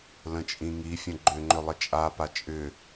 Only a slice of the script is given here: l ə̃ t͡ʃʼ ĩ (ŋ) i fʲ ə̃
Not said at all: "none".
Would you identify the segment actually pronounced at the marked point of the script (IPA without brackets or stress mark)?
ŋ